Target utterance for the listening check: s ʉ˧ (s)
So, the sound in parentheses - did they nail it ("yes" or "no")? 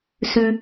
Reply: no